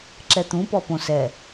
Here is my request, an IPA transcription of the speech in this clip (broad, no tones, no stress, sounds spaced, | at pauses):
ǁ ɛ t̪ ũ p ɔ p õ s ɛ